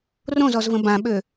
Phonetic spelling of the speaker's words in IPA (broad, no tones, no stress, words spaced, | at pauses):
rõzɔzvə̃ bãɓø